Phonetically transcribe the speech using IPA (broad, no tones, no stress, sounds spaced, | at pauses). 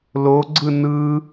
l o ɡ͡ǀ ɯ n ɯ